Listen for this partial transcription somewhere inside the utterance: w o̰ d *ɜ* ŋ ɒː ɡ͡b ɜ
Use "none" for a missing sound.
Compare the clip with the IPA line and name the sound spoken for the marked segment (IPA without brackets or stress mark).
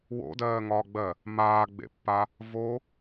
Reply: ɜː